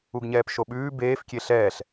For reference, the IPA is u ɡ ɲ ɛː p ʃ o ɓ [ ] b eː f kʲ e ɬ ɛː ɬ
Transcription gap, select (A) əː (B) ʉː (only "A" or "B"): B